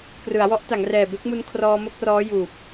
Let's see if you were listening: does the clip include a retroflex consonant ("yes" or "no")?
no